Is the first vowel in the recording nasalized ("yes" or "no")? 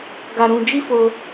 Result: no